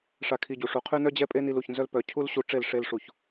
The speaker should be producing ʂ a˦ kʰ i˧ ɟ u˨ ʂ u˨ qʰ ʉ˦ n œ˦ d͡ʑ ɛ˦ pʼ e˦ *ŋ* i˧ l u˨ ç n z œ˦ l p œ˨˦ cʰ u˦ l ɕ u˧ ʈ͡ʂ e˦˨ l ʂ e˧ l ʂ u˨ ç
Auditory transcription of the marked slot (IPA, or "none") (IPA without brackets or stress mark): n